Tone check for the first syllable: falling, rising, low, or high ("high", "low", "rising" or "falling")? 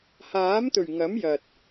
rising